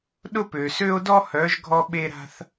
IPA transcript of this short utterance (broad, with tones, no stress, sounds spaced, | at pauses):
ɗ ʊ˦ p ø˨ s ø˦ o̯ d ɔ˦ h œ˨˦ ʒ ɡʱ ɔ˧ ɓ e˧ ɾ a̤˧ θ